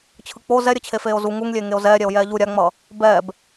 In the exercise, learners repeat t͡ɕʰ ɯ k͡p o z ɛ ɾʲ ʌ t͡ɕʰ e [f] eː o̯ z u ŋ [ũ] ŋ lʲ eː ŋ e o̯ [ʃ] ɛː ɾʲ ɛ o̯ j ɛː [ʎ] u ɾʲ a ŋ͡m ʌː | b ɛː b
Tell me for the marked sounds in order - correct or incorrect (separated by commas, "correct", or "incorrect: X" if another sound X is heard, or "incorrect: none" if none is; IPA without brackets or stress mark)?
correct, incorrect: u, incorrect: z, correct